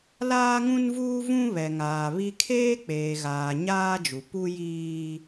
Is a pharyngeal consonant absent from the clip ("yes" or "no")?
yes